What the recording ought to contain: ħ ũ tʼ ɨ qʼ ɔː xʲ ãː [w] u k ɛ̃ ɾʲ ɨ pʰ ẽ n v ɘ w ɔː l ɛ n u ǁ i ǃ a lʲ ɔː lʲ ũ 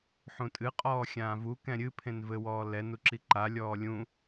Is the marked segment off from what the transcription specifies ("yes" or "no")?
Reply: yes